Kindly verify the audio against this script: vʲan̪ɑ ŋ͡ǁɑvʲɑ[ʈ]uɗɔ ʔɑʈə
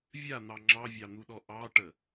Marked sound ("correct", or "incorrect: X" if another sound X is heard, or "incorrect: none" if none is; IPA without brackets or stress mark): incorrect: n̪